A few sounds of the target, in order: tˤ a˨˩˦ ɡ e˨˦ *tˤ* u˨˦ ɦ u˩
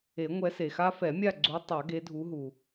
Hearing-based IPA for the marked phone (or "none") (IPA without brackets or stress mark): dʱ